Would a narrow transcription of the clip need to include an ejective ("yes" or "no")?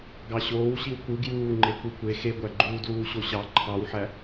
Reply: no